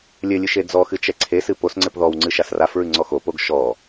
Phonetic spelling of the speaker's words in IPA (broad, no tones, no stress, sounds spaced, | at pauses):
lʲ ɘ lʲ ɨ ʃ e d͡z ɔ x ɨ t͡ʃ ɛ ǀʰ e s ɨ p o s ŋ͡ǀ ɘ p ð ɔ w ŋ͡ǀ ɨ ʃ a s r a f ɹ ɨ ŋ͡ǀ ɔ x o p o ɡ ʃ ɔ